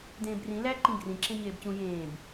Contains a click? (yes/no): yes